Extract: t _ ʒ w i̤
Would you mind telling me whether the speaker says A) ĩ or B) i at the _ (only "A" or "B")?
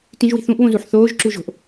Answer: A